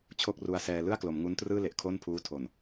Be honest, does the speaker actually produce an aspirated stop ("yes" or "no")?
yes